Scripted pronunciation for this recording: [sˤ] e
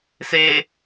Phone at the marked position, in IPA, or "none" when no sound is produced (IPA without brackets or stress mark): s